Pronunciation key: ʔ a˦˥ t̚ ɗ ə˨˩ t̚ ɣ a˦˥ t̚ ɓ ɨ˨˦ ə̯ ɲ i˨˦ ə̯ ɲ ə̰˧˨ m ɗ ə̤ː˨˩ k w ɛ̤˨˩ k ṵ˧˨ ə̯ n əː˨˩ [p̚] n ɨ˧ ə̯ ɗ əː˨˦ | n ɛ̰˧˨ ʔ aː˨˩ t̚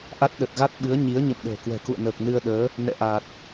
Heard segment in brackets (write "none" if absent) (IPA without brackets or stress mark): k̚